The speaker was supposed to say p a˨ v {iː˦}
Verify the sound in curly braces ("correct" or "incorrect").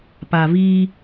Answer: correct